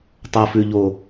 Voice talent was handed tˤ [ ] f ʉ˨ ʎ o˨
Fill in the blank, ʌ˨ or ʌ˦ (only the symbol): ʌ˨